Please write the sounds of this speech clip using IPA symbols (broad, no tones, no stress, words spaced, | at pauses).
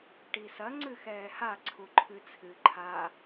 ʈisɐ ŋ͡ǀɨxɛːha ǀʰuǃʰɨt͡sʰɨ ǃʰa